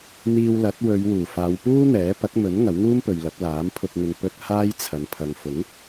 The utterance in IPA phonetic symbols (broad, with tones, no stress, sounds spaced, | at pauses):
n̪ iː˧ w l ɐ˨˥ t̚ w ɵ˨˧ ɥ w uː˨˩ f aː˨˧ w p uː˥ n̪ ɛː˨˥ p ɐ˨˥ k̚ m ɵ˨˥ n ŋ ɐ˨˥ w ŋ uː˥ m p ɵ˨ ɥ l ɐ˨˥ p̚ l aː˨˥ m pʰ ʊ˧ k̚ ŋ ɪ˨ ŋ p ɵ˧ t̚ h aː˥ j t͡sʰ ɐ˨ n pʰ ɐ˨ ŋ f ʊ˨˥ ŋ